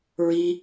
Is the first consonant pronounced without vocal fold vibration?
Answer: no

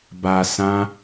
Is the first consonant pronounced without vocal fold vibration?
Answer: no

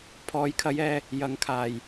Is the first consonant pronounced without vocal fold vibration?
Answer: yes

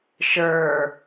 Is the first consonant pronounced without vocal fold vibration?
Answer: yes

